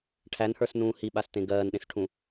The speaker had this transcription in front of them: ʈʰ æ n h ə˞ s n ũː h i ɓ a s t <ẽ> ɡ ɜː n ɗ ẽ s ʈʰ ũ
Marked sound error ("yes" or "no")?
no